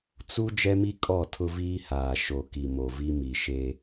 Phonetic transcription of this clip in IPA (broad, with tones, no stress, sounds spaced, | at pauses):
t͡s u˦ d͡ʒ ɛ˦ m i˦ kʼ ɔ˦˨ tʰ ʊ˦ v iː˦ h aː˨ ʃ o˨ k i˨ m o˨ v i˦ m i˨ ʃ e˦